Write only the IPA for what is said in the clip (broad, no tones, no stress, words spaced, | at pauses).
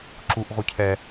ǁuʔ ʁucʰɛ